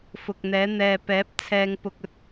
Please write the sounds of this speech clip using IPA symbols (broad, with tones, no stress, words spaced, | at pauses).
fʊ˨k̚n̪ɛː˨˥ n̪ɛː˨pɛː˨˥p̚ t͡sʰɛː˧ŋpʊ˧k̚ ɵ˨t̚